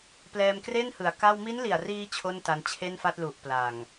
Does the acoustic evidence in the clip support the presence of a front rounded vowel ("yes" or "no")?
no